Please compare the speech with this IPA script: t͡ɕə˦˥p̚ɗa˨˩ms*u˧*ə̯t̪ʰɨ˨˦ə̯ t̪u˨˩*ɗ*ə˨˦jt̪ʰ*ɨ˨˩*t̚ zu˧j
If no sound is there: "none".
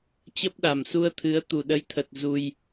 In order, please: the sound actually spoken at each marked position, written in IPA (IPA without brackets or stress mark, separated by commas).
u˧, ɗ, ə˨˩